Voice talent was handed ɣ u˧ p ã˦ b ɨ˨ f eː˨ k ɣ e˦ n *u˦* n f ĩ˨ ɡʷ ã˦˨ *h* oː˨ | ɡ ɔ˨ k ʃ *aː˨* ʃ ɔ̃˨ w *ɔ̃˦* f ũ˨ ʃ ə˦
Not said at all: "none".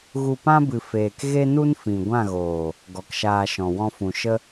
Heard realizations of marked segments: u˦, ɣ, aː˧, ɔ̃˧

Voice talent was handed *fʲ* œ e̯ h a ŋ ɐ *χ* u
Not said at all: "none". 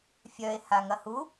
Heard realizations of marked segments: fʲ, h

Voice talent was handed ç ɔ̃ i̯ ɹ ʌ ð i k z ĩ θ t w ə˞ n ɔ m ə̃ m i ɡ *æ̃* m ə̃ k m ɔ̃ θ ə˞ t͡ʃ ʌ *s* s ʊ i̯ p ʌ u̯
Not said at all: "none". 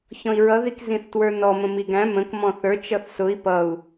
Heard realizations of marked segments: æ̃, θ

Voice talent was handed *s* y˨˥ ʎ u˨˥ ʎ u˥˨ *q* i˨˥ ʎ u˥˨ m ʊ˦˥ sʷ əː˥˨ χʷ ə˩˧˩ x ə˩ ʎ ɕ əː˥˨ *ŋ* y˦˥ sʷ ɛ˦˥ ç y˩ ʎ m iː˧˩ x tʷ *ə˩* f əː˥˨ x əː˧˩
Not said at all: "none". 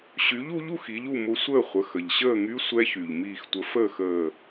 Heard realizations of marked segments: ɕ, x, ŋ, ə˨˥

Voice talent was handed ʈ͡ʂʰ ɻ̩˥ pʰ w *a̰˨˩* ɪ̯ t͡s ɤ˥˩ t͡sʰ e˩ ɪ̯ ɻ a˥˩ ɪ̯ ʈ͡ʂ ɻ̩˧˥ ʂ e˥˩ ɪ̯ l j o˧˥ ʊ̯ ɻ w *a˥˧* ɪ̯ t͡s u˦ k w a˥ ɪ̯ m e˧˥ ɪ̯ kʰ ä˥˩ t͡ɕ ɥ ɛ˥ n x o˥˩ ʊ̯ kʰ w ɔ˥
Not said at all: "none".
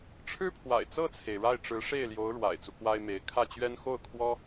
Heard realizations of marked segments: a̰˨˩, a̰˨˩

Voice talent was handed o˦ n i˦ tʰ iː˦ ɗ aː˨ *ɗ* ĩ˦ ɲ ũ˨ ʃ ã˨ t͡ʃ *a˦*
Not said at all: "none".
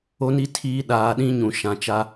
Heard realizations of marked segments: ɗ, a˦

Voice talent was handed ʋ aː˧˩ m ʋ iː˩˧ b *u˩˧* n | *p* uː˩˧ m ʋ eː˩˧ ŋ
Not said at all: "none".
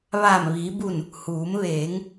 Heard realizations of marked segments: u˧˩, h

